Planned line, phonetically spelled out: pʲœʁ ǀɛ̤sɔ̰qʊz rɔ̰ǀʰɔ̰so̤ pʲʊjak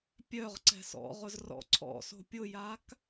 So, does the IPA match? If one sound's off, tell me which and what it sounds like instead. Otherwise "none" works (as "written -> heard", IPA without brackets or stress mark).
q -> ʁ